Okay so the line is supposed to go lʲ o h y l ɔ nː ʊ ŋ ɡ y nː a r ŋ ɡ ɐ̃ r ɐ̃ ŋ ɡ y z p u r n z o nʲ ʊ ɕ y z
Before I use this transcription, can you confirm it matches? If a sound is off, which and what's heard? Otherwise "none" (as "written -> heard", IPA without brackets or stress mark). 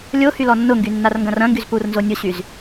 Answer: none